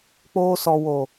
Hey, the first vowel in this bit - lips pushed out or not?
yes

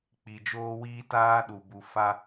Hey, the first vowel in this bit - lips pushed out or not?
no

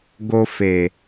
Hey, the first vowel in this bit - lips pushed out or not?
yes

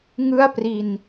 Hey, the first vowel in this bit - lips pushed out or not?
no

